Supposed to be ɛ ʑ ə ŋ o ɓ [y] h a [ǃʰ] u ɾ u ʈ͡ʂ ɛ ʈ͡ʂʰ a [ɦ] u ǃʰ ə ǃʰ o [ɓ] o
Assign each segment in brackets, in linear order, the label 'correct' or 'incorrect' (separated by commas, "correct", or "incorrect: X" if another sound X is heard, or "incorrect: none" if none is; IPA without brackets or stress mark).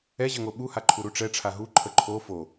incorrect: u, correct, correct, incorrect: f